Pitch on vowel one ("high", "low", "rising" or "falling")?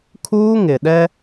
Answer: high